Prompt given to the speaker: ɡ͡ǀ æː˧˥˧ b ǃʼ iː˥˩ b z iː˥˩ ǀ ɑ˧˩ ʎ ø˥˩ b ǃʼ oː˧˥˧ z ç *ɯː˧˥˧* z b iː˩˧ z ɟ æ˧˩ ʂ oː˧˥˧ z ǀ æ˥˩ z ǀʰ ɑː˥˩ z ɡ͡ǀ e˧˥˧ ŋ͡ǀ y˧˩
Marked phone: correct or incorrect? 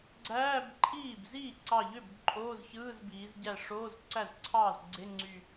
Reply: correct